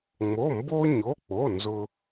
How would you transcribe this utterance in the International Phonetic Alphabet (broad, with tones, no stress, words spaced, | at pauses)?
ŋ͡mo˩˧˩mbo˧ɲo˩˧˩k͡po˩˧˩ nzʊ˧